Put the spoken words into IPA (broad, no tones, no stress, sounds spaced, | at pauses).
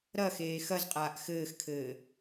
ɾ ɐ x eː x ɐ z qʼ aː ʔ x ɘː x kʰ ɘː